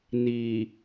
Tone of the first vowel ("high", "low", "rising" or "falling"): low